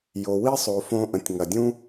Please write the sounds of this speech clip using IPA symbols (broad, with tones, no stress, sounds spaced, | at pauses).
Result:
j o˩ w i˥ sˤ o˩ f õ˧ ʔ ə̃˩ tʲ ŋ ɐ˩ dʲ ũ˥